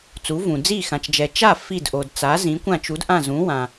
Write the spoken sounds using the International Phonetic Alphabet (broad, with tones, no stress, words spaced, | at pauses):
t͡su˩˥vũ˩ d͡zi˥˩xã˩t͡ʃd͡ʒɛ˩ t͡ʃa˥˩ fi˥˩dʔo˩d t͡sa˩˥ zĩ˩˥kʷã˥˩ t͡ʃu˩˥d ʔã˥˩zũ˩˥wã˩